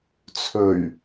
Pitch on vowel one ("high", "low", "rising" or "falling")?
low